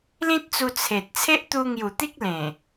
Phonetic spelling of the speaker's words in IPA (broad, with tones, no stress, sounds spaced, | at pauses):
l ĩ˦ t̚ t͡s u˧ t͡sʰ e˨ t̚ t͡sʰ e˦ ʔ t̪ u˧ ŋ j u˨˩ t̪ i˦ k̚ l ẽ˨˩